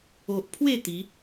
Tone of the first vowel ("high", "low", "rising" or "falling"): low